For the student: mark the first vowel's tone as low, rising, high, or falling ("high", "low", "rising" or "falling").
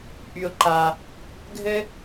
low